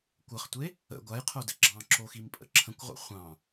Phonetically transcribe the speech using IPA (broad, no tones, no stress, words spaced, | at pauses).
kʷəχtʷe | ə̰ ɡʷajqʰodɘ ɡ͡ǁɑ̃ǁoximpʼə̰ ǁʰə̃kʷʁʷə̰ χʷɑ̃